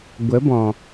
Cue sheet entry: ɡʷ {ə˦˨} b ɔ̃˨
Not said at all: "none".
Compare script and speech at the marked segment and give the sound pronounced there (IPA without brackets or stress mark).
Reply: ə˨˦